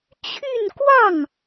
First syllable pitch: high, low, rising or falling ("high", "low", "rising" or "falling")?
falling